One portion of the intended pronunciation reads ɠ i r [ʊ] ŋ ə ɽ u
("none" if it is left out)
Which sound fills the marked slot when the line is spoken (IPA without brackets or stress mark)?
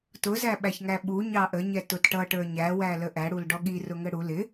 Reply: ʊ